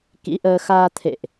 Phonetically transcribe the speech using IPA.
k ḭ˧˥ ʔ əː˧ x aː˧ t̪ʰ ḛ˧˨ ʔ

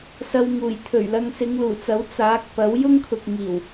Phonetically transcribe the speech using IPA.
s ɐ˧ w ŋ uː˨˩ j t̪ʰ ɵ˨˩ ɥ l ɐ˧ ŋ s ɪ˨˧ ŋ l uː˨˩ t͡s ɐ˨˥ w t͡s aː˨˥ k̚ p ɐ˨˥ w j ʊ˥ ŋ kʰ ʊ˨ k̚ ŋ iː˨˩ w

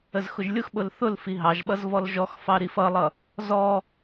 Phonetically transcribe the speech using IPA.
ə z x ʊ ʒ lʲ ʊ x ɓ ʊ l θ ʊ l f i ɦ ɑ ʒ ɓ ʌ z v ɔ l ʒ ɔ x f ɑ ɾ i f ʌ lˠ ʌ | z ɔ

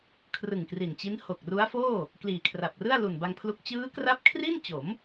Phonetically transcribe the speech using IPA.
kʰ r ɯ˨˩ ŋ k r i˨˩ n t͡ɕ i˦˥ n h o˨˩ k̚ r u˦˥ a̯ f oː˥˩ | k l iː˨˩ kʰ r a˨˩ p̚ r ɯ˥˩ a̯ l u˨˩ n b a˧ ŋ pʰ l u˦˥ k̚ t͡ɕ ɯː˦˥ k r a˦˥ p̚ kʰ r i˥˩ n t͡ɕ o˩˦ m

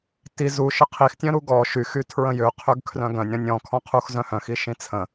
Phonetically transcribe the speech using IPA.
t i z u ʃ ə qʰ i x tʲ œ̃ ɾ u ɡ ɔ ʃ y x y tʰ ɹ ə̃ j ø qʰ ø ɡ kʰ r œ̃ ɡ œ̃ nʲ ɾ ɔ̃ nʲ ɔ̃ kʰ ɔ̃ qʰ u x z œ̃ h œ̃ x i ʃ ĩ t͡sʰ ə̃

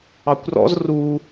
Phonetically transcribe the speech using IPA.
ɑ kʷ r ɔ̰ z r u

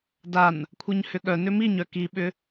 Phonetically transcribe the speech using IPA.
d a n | kʷʰ ə˞ ɲ h ʏ ɠ œ n ʏ m i ɲ œ k i ɓ ʏ

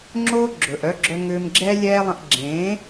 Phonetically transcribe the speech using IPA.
ŋ͡ǁ oː˦ ɡ͡ǁ ɵ˨ ʔ œ˦ ɡ͡ǁ œ˦ ŋ ʏː˦ m ɡ͡ǁ ɛː˦ lʲ ɛː˦ lˠ ə̃˧ ʔ ɡ͡ǁ ẽː˨˦

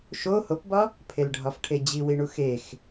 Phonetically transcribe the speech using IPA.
ʃ o h o p b ɒ | pʰ e l ɖʱ ɒ f ʈʰ e d͡ʑ i w i ɳ u x e x

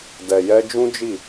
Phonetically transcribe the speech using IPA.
d ɛ˨ j ɛ˧ d͡ʒ ũ˦ d͡ʒ i˦˨

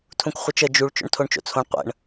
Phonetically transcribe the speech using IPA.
tʰ ũ k χʷ ɪ t͡ʃ ə d͡ʒ u ɭ t͡ʃ o̰ ɳ tʰ o ɳ t͡ʃ o̰ t͡sʰ õ ɳ qʷ ə̰ ɳ

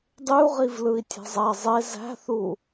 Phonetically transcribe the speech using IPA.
dˤ y u̯ ʁ i v l ɯ i̯ tʲ æ̤ zˤ æ zˤ e z æ̤ θ u

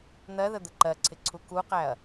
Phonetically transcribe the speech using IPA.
n̪ ɜ ð ə d̪ ə ǃ ɜ ǀʰ ɪ ǀʰ u k u q æ ɐ̯

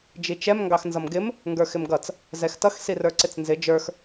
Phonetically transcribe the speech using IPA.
d͡ʒ i t͡ʃ ɛ m ŋ ɡ ɑ x n z ʌ m ɡ ɪ m | ŋ ɡ ə˞ x ɪ m ɡ ʌ t͡s | z ɛ x t ʌ x s i r ə˞ ǀ ɪ t͡s n z ɪ d͡ʒ ə˞ x

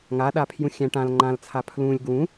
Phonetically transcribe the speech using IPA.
ŋ a ɗ a pʰ j ũ xʲ æ̃ ʈ ã l ŋ͡ǃ ã l t͡sʰ a pʰ l ũ lʲ ɡ w ũ

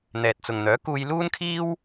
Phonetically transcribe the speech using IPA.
n̪ ɛː˨ t̚ t͡s ʊ˨ ŋ n̪ œː˨˥ k uː˧ j l uː˥ n kʰ iː˥ w

